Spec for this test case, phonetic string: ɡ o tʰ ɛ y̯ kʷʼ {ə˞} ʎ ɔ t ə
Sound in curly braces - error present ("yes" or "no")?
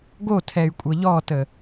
yes